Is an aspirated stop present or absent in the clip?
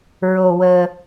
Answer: absent